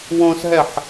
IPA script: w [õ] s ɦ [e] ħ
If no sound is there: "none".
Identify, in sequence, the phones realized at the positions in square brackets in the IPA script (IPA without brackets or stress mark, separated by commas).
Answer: õ, ɛ